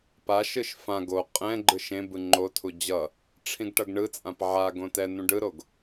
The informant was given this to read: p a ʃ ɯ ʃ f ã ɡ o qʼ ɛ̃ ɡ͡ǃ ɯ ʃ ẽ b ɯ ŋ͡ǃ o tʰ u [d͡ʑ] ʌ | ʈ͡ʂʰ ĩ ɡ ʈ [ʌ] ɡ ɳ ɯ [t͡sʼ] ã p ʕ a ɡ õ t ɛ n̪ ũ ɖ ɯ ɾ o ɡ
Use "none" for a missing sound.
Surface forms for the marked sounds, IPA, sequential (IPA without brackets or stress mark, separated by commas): d͡ʑ, ʌ, t͡sʼ